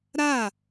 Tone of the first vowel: falling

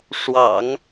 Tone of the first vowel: low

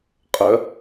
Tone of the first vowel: high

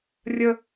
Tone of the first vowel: high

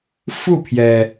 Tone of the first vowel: falling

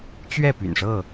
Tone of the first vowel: falling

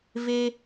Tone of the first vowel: high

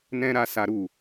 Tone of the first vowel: high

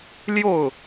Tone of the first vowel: falling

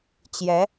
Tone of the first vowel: rising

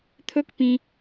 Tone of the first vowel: high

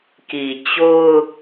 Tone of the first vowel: low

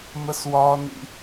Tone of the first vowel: high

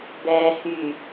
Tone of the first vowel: low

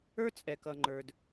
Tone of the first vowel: high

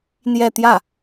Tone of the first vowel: falling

